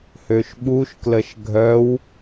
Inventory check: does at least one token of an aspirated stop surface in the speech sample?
no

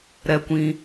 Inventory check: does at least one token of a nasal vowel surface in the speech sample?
yes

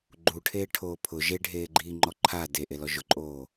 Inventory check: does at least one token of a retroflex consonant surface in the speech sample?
yes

